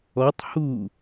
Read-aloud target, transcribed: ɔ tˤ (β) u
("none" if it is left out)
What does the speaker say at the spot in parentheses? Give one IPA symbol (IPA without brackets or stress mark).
h